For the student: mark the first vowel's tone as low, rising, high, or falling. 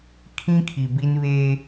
high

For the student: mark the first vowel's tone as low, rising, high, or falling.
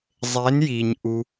rising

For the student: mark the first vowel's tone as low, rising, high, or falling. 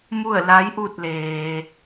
falling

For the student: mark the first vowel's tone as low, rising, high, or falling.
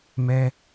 high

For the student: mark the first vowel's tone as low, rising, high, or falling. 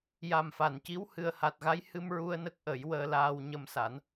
low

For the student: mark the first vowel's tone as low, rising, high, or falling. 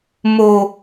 low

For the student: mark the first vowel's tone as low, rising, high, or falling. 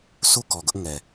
falling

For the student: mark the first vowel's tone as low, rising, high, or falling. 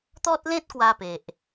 high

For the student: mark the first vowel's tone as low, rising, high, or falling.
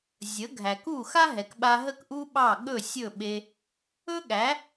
rising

